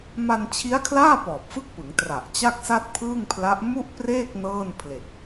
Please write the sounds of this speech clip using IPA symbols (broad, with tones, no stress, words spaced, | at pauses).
ma˧nt͡ɕʰi˦˥a̯kʰlaː˥˩ pɔː˨˩p̚fɯ˥˩k̚pɯ˩˦ŋ tra˨˩ʔ t͡ɕa˥˩k̚sa˥˩t̚pʰɯː˥˩ŋpʰla˦˥ʔ mu˥˩ʔpreː˥˩k̚ nɤː˥˩npʰle˨˩k̚